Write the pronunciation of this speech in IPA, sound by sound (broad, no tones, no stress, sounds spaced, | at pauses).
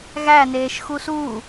ɣ æ n eː ʃ x u s uː